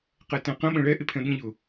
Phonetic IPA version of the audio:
qɛtæ̃qə̃ ɓə̃ɭɛ ʔɪpʰɛ̃ɓĩʎʊ

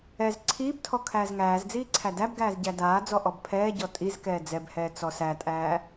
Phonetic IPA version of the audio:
ɛz ǀʰiːbtʰɔ kʰæːzŋæːzd͡ziː ǀʰædæbɡæːz ɟædaːd͡zɔ ʔɔbpʰɛːɟɔ tʼizkɛː d͡zɛbhɛː t͡sɔsætʼæː

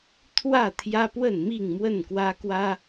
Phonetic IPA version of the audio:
t̪ʰwä˥˨t̪ʰjä˦pwə˥˨n mi˥˨ŋmwə˥˨nkwä˦kwä˦

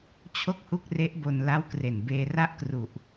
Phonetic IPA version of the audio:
t͡ɕʰo˥˩k̚hu˥˩k̚re˦˥ʔbo˧n la˦˥wkre˨˩nbeː˧ ra˥˩ʔkru˨˩ʔ

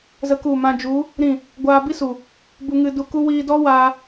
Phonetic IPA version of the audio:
zə˧ ku˦˨mã˦ d͡ʒu˨˦ | ɾĩ˦˨ | ɡʷaː˧bi˦su˨ | bu˧ŋɨ˧du˧ku˦ wiː˧dɔ˦ waː˧

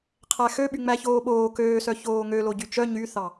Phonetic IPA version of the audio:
qʰæxøɓy ŋ͡mæçoːɓoː køːsœ çoːŋølo ɟyt͡ʃœ ɲyθɑ

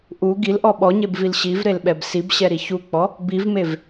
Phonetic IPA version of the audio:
ʔu ɡilʔɔ ɓɔɲebvil ɕivɾelɓɛb sibɕɛɾi çuk͡pɔ | bivmev

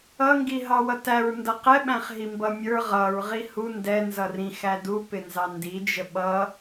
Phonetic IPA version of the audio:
ʌŋɡiɦɑwʌ tæɹ ndʌqɛɓæ̃χ ɦimbʌmʲə˞ ʁʌɹʁi hu ndɛnzʌ rĩ xædupɪnzɑ ndid͡ʒə ɓʌ

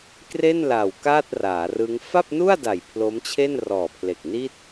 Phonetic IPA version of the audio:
kre˥˩nla˨˩w kaː˥˩t̚raː˩˦rɯ˦˥ŋ fa˥˩p̚nu˥˩a̯da˨˩j pʰlo˦˥mt͡ɕʰe˥˩nrɔː˨˩pʰle˨˩k̚ ni˥˩t̚

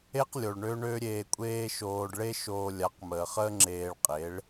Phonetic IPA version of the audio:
e˦qlʲo˨ɭ ɳø˦ɳø˦ ɾʲeː˧kʷʼeː˦ʃoː˧ɖ ɭe˦ ʃoː˧ lʲa˨˦qməː˨χəː˦ ŋ͡ǁeː˧ɭqʼe˨˦ɭ

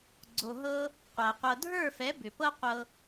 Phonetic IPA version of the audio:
ɡ͡ǀo˨ɦɤ˧ | qʷæ˨qʷɤ˧ dʱə˞˦˨fɛ˨˦ bʏ˨pɤ˦qʷɤ˧

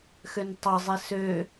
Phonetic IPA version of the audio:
xøntˤɑzˤe sø

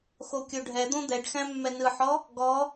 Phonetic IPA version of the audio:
xokʲoɖʱɛd̪õ d̪ɛɖxæ̃ mːɛnɯħɔ | ɡɔ

